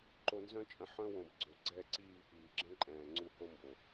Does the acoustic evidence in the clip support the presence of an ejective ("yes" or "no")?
yes